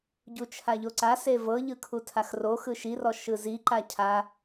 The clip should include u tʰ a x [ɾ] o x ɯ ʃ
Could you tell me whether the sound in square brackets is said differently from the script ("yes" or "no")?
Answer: yes